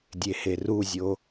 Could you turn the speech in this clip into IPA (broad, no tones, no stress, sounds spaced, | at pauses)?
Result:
dʲ e h e r u zʲ o